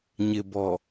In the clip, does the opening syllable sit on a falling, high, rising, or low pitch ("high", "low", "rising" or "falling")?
low